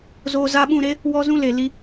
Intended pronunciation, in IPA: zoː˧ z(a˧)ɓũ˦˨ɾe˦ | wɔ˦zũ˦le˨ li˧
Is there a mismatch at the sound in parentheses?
no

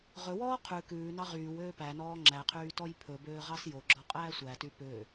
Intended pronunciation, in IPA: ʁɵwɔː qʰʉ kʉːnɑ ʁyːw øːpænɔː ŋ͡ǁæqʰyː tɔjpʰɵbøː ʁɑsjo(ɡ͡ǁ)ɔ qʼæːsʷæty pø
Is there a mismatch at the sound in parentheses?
no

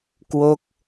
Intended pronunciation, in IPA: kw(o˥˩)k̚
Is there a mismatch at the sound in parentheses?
yes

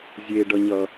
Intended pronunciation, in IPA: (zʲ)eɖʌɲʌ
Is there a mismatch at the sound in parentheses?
no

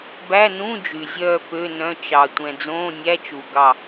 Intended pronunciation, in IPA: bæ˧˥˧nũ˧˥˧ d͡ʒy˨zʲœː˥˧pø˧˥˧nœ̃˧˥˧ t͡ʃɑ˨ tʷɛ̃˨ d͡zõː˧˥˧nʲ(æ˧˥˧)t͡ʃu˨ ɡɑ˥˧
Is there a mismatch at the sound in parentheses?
no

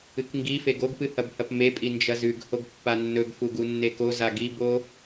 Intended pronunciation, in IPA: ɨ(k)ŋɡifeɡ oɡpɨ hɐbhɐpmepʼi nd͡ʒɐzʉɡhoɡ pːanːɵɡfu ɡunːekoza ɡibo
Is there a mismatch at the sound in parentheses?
no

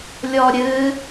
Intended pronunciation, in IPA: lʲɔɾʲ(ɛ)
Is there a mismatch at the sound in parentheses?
yes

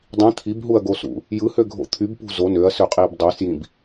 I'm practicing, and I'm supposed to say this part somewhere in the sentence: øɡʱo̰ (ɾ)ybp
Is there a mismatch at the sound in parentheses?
yes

